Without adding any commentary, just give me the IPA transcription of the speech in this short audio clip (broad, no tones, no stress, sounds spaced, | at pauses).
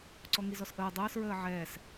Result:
ǀ ɔ ŋ i z ɔ s ʔ əː dˤ əː s ɹ əː ʕ ɛː s